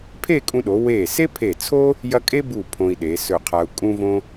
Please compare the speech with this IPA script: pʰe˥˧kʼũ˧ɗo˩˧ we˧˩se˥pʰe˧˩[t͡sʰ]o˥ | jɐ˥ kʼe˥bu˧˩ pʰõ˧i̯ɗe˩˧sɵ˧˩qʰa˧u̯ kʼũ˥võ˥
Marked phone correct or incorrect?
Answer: correct